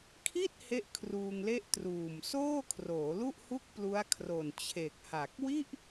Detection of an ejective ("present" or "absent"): absent